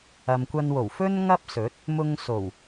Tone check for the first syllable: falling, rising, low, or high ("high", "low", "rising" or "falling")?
low